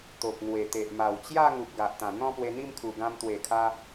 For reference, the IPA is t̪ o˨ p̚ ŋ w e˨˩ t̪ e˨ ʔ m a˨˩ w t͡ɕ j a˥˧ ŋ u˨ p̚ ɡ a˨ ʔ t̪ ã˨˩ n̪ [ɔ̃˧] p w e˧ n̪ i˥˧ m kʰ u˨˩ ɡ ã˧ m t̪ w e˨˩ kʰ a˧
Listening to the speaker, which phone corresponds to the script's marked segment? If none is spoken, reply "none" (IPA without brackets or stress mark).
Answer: ɔ̃˥˧